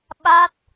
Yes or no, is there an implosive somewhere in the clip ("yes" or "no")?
yes